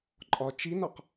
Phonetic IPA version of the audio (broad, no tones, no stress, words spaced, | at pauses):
ǃʼɒ t͡ʃinɒq